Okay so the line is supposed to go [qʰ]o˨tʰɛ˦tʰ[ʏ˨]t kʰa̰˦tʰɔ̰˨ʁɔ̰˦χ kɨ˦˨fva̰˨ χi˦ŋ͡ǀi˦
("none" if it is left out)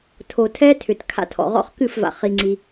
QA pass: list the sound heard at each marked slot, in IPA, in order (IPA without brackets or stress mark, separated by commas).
tʰ, ʏ˨